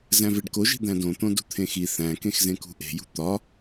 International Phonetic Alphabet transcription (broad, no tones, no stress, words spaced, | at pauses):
zæ̃veɖkoʒi̤ d̪æ̃dõt̪õ dṳt̪ʰẽxi θæ̃kẽxzẽkṳ ʔe̤jṳ t̪ɒ